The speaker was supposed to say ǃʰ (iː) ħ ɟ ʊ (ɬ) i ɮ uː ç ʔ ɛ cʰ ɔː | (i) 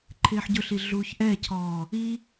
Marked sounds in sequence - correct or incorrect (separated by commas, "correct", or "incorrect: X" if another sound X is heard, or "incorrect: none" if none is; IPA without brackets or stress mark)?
incorrect: ɪː, correct, correct